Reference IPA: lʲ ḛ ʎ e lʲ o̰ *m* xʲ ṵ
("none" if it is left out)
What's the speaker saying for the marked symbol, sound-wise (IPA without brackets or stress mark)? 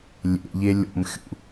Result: m